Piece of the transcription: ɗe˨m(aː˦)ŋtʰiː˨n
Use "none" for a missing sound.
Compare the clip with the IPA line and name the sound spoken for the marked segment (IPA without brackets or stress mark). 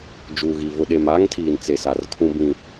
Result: aː˦